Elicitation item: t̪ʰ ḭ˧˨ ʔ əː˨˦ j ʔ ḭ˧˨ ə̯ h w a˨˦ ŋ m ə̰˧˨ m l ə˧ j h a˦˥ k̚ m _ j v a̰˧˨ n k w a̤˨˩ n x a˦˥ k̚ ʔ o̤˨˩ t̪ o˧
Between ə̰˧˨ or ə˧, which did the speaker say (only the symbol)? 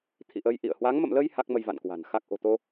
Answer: ə˧